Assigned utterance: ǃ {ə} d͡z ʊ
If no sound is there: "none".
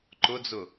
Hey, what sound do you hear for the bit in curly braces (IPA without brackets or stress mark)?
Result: ʊ